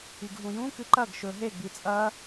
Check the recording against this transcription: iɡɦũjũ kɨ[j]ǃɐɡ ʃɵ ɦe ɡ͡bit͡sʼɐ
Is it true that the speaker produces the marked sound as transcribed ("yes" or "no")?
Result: no